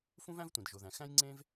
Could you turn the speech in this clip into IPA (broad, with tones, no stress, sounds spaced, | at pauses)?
f ũ˥ v æ̃˥ v tʷ ẽ˩ d ʒ o˩ ð æ̃˩ x æ̃˥ j ŋ͡ǀ ẽ˥ v